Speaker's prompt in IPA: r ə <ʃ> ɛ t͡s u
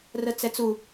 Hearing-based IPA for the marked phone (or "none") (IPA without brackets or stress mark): t͡s